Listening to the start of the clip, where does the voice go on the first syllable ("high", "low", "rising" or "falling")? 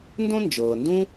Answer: high